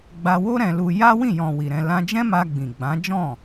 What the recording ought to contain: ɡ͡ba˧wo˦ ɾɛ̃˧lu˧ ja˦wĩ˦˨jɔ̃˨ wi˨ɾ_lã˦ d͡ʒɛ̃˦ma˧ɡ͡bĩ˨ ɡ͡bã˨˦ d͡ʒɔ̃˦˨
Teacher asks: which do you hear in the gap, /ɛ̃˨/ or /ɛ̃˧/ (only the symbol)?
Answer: ɛ̃˧